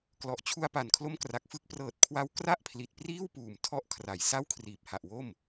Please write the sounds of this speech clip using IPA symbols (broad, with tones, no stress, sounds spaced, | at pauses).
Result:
k l ɔ˨˩ ʔ t͡ɕʰ u˧ a̯ p a˨˩ n kʰ l o˦˥ m k r a˨˩ k̚ f ɯ˦˥ k̚ p r ɤː˨˩ t̚ kʰ w a˧ w k r a˥˩ ʔ pʰ l i˨˩ t̚ p r iː˥˩ w p uː˨˩ m tʰ ɔ˥˩ ʔ kʰ r a˩˦ j s a˥˩ w kʰ r iː˨˩ p̚ h a˨˩ ʔ w o˥˩ m